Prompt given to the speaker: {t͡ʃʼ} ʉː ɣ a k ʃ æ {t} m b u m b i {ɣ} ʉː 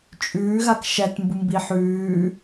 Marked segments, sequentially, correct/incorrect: correct, correct, incorrect: ħ

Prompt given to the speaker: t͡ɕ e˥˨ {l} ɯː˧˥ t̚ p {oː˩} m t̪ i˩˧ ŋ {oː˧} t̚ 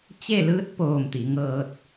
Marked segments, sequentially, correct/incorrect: correct, incorrect: oː˧˩, incorrect: ɤː˧

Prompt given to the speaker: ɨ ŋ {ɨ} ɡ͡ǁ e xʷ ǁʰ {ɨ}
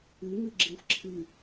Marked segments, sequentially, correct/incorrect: correct, correct

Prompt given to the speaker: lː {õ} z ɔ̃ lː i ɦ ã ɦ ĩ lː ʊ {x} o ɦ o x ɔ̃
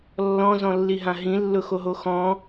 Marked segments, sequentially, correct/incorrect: incorrect: ɔ̃, correct

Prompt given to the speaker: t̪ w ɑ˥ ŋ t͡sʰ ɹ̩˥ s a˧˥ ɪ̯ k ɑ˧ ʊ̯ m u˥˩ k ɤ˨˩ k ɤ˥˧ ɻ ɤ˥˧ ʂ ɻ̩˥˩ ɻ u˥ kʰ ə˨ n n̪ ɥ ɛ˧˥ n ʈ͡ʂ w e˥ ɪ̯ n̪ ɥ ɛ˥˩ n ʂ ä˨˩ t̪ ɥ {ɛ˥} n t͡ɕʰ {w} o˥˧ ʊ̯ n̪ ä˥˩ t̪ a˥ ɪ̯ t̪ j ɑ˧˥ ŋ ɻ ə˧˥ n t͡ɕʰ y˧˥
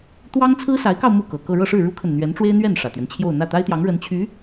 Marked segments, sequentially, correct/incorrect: incorrect: ɛ˦, incorrect: j

